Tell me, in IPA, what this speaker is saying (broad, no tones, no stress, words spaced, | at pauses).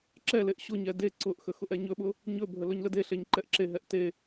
ǁɛleʔ ɕʊɲɛ de ǀʊʔxə xʊʔɛɲɵɓʊ | ɲɵbʱə lɵɲlədeɬeɲ ǃɛʔǁeɦɛʔ te